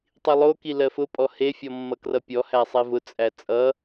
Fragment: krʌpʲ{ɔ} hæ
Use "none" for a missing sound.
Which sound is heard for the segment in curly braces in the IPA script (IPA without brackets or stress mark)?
ɔ